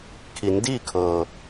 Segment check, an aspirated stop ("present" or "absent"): present